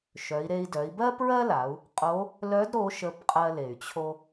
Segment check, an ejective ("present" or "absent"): present